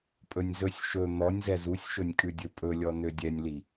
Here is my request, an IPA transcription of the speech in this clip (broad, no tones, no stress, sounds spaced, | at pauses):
pʼ ɵ nʲ z ɵ sʲ ʃ ɵ n̪ ɔ nʲ z ɛ z u sʲ ʃ ɵ nʲ kʼ ʉ dʲ ɵ pʼ ɵ lʲ ɔ n ø dʲ ɛ nʲ l i